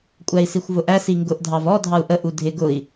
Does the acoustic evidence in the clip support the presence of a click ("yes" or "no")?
no